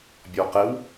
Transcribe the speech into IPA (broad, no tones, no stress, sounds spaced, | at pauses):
bʲ ɔ q ɛ w